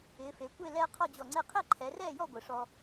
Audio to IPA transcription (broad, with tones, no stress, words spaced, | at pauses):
ɪː˩˧fe˩˧kʷe˥˨ lɛː˦qʰɔ˥˨d͡ʑɔ˧˩ŋ͡ǀe˥˨ qʰe˥˨ǃʰɛ˩˧rɛː˥˨jɔ˥˨ ɡʷɪ˧˩ʂɔ˦